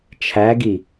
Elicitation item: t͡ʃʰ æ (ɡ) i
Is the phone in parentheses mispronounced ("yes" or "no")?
no